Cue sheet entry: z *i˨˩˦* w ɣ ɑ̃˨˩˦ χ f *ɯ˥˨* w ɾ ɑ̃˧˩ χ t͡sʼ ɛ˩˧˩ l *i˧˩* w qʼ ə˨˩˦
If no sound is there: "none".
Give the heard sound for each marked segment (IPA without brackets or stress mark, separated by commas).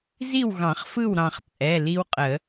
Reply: i˥˨, ɯ˥˨, i˦